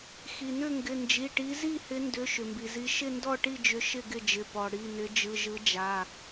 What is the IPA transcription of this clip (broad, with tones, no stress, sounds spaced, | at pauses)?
x i˩ n ʏ˥˨ ŋ ɡ ɪ˩˧˩ n d͡ʒ i˩˧˩ ʈ i˨˦ z i˥˨ h ɪ˨˦ n d ʏ˩˧˩ ʃ ʏ˩ m b i˩ z i˨˦ ʃ ɪ˥˨ n d ɔ˥˨ ʈ i˥˨ d͡ʒ ʏ˨˦ ʃ ɪ˥˨ ɡ ɪ˥˨ d͡ʒ ɪ˩˧˩ p ɔ˩ ɽ i˩˧˩ n ɪ˨˦ d͡ʒ ɯ˩˧˩ ʒ ɯ˨˦ d͡ʒ a˩˧˩